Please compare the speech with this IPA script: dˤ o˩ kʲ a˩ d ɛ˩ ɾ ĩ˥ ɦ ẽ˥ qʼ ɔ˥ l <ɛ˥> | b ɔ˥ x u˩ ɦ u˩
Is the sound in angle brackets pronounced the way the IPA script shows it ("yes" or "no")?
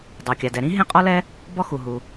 yes